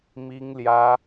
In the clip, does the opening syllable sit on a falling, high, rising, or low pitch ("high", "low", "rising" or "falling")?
high